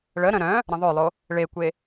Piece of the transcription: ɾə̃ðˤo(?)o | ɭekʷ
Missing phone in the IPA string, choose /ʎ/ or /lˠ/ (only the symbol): lˠ